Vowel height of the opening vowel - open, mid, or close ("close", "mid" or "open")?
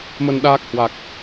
mid